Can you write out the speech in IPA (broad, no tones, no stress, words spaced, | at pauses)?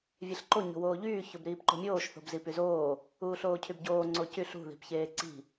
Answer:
vʲeɬǃo ɲo̤woːʎyː çobɾiːpǃo̤mʲoːʃ θo̤bzipyzoː | uːɬoːcʰybɟoː ŋ͡ǀocyɬ ṳ ði̤pçeːǀi̤